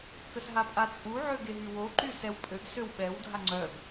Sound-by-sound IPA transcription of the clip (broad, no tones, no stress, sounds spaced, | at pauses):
k ə s ɦ a pʼ a t͡sʼ u ʕ ø ɡ e ɦ y w o ǃ y s ɛ w pʼ ø ɡ s ø w ɓ ɛ w dʱ a ŋ͡ǀ œ ɡ